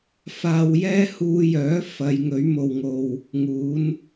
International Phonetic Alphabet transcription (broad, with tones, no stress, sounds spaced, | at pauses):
f aː˧ w j ɛː˥ h uː˧ j œː˨˥ f ɐ˨˧ j ŋ ɵ˨˥ ɥ m o˨ w ŋ o˨ w | ŋ uː˨˥ n